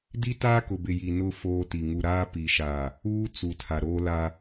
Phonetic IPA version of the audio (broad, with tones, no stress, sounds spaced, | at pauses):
d i˦ t aː˦ k ʊ˨ b ɪ˨ j i˨ n ʊ˦ f oː˦ t i˨ ŋ u˨ ɾ aː˦ p i˨ ʃ aː˨ | uː˦ t͡s u˨ tʰ a˨ ɾ oː˦ l a˦